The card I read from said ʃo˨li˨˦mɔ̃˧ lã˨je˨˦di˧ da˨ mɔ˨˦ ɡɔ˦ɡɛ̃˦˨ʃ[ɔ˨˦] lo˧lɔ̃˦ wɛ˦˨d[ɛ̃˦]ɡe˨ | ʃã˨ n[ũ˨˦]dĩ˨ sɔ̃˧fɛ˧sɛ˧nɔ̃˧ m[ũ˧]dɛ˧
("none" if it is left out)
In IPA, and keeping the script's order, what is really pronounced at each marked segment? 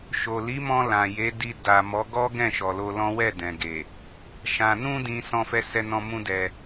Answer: ɔ˨, ɛ̃˨, ũ˧, ũ˦

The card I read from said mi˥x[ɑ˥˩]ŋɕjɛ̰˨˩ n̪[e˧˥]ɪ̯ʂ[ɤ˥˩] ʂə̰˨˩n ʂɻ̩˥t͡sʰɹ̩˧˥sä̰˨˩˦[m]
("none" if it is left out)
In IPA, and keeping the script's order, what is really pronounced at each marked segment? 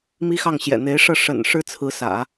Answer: ɑ˥˩, e˧˥, ɤ˥˩, none

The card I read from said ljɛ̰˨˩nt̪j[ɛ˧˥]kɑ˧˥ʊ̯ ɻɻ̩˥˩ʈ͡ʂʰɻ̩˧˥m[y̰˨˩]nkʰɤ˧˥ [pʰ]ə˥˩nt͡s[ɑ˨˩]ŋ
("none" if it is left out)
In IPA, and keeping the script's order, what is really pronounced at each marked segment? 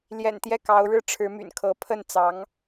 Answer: ɛ˥˩, y̰˨˩, pʰ, ɑ˧˥

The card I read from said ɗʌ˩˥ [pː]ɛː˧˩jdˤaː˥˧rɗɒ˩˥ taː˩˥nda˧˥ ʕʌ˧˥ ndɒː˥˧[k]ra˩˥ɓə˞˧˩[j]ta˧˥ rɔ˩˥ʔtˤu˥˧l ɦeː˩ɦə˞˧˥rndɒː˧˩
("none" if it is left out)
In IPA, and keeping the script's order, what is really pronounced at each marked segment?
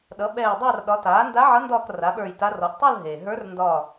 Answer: ɓ, k, j

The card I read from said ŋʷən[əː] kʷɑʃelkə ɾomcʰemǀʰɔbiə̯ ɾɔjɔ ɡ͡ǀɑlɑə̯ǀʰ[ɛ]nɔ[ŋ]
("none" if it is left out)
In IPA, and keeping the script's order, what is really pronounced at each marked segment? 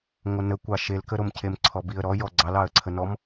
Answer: ə, ə, m

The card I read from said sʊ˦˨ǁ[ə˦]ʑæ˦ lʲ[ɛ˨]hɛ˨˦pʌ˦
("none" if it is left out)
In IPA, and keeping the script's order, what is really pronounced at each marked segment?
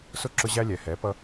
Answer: ʊ˦, ɛ˨

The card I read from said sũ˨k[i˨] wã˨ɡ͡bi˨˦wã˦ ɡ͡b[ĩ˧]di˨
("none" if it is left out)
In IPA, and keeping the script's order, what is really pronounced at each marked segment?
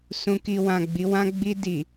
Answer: i˨, i˧

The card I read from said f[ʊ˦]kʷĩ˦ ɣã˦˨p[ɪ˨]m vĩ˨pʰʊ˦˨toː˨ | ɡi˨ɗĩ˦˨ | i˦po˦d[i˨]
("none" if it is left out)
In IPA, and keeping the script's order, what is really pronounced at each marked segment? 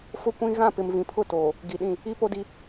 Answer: ʊ˦, ɪ˨, i˦

